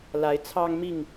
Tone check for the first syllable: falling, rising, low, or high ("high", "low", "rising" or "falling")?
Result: rising